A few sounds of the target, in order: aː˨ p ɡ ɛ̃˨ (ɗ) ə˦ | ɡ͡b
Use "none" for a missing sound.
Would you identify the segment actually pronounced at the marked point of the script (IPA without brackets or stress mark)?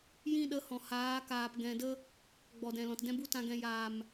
d